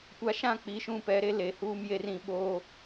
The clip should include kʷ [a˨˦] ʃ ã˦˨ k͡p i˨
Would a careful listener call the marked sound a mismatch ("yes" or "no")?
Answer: no